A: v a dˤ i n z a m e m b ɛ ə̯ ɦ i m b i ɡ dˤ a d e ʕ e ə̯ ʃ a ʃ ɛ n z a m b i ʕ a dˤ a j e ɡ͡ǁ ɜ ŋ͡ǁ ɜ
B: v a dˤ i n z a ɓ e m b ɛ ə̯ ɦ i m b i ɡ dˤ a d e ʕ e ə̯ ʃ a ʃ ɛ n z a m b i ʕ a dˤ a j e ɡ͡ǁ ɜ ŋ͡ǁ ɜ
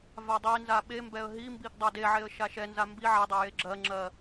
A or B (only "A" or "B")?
B